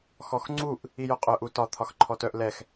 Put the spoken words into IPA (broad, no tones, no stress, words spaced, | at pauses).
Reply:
xɔxŋ͡ǀuʔ | ijœqʼœ ʔutɒ t̪ʰɒxǃʰɔtœʔ lɛx